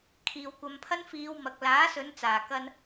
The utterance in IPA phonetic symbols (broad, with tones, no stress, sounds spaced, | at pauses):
kʰ iː˨ w kʷ ɐ˨˧ m pʰ ɐ˥ n f iː˨˧ w m ɐ˨ k̚ l aː˨˥ s ɵ˨˧ n t͡s aː˨˩ k ɐ˧ n